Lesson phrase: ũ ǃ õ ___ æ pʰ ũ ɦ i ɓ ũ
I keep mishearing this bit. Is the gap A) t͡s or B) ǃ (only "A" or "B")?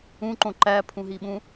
B